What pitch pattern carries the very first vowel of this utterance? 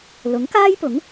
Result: rising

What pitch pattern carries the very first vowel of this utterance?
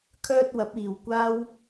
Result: high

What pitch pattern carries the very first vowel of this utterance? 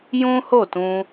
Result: high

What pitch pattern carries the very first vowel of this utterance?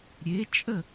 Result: rising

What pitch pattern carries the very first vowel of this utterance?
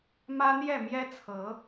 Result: high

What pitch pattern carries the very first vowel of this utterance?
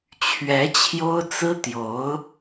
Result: rising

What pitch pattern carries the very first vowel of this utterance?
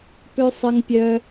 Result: high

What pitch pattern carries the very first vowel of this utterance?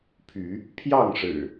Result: rising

